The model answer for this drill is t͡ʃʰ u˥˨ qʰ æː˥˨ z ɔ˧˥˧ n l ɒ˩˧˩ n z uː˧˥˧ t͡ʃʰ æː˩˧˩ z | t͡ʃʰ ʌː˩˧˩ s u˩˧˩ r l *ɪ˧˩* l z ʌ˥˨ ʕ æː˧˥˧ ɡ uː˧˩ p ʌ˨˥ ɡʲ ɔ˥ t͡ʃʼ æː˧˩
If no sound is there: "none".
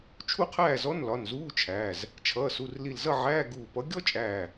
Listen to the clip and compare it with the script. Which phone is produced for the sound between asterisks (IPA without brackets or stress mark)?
i˧˩